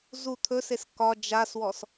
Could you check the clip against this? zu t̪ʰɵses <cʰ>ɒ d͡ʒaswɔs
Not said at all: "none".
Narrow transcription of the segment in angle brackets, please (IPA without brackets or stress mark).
k